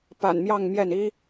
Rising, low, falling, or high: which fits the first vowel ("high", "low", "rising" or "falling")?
low